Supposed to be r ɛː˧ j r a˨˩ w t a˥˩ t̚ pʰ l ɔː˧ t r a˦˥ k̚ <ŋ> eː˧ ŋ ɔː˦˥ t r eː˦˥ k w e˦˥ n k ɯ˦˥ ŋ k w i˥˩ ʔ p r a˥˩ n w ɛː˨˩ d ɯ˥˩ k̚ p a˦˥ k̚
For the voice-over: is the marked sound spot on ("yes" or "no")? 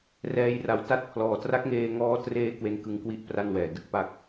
yes